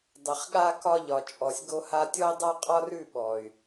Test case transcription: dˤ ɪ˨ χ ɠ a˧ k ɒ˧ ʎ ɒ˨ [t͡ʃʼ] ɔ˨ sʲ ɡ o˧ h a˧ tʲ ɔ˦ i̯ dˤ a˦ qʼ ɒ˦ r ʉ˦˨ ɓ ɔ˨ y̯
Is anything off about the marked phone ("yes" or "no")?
no